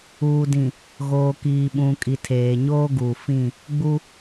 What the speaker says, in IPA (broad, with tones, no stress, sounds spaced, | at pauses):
uː˨ d ĩ˨ | ɣ oː˨ k iː˨ ɓ ũ˨ kʼ i˨ tʰ eː˨ ɲ oː˦ ɡ uː˨ f ĩ˦˨ | ɡ͡b u˦